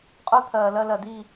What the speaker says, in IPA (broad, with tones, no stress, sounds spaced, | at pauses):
qʼ ʊː˥ t̪ʰ ɜː˨ l ɜ˥˨ l ɜ˨ d iː˥˨